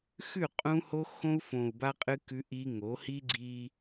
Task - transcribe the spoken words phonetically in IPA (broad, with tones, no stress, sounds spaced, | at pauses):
x ʉ˦˨ qʼ ũ˦ h o˦ x õ˦ u̯ f õ˨ u̯ b a˦ qʼ ɨ˦ k ʉ˦ ʔ i˦ ŋ o˨˦ h i˦ ɡ͡ǀ i˦